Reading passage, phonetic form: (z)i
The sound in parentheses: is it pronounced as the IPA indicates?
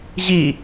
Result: no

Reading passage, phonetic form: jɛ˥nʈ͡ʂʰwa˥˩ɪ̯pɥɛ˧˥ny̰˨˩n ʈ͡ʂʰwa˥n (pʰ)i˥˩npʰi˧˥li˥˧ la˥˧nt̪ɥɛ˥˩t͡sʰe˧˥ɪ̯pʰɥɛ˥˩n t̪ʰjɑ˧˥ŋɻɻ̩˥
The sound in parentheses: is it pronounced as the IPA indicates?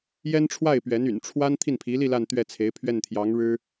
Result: no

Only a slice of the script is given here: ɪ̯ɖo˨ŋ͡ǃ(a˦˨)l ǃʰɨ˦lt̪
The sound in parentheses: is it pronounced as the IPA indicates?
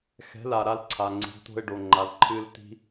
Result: no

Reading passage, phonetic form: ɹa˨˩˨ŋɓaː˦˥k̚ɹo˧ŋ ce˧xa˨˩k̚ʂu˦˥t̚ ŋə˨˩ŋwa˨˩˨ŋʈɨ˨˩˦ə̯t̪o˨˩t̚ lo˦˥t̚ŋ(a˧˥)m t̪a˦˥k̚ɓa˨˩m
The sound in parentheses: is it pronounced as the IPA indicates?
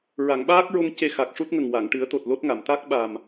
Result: no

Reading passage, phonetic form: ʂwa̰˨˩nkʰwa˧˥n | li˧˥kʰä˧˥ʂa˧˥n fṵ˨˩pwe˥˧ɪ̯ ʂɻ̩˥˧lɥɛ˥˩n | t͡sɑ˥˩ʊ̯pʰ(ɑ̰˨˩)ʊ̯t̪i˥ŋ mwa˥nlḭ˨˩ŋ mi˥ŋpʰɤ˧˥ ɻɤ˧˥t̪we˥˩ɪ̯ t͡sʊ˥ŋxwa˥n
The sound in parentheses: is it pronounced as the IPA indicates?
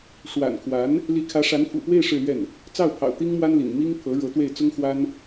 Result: yes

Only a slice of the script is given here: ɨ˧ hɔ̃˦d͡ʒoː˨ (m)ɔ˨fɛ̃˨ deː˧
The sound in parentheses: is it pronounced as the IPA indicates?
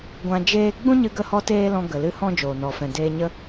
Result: no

